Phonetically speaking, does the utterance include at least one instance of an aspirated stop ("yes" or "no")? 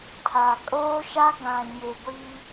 yes